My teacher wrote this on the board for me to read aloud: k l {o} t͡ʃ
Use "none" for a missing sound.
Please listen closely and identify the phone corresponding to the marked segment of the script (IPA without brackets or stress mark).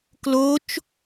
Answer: o